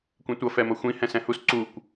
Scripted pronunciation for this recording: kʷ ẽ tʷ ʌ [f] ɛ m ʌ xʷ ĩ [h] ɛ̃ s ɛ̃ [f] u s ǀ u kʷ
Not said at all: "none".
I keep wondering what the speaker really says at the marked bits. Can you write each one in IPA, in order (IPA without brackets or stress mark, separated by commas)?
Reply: f, h, h